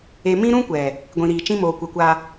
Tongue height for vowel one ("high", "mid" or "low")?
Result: mid